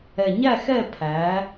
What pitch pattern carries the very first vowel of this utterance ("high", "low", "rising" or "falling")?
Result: low